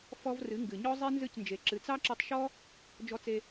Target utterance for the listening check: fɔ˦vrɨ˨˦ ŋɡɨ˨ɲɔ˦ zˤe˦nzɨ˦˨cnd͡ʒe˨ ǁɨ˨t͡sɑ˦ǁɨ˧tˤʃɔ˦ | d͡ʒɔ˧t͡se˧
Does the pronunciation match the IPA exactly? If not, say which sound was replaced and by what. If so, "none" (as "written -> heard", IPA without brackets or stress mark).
none